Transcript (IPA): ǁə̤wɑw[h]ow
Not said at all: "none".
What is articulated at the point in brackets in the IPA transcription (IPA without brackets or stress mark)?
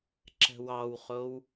χ